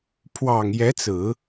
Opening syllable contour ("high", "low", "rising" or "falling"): low